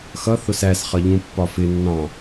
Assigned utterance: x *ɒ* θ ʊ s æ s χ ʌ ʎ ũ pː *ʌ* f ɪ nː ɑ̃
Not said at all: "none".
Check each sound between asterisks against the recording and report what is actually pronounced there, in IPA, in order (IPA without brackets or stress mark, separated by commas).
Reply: ʌ, ɒ